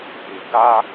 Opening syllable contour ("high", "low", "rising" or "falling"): low